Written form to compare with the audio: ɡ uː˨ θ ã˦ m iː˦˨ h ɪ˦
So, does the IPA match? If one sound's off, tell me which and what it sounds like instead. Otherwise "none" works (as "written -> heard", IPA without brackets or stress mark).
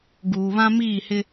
θ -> β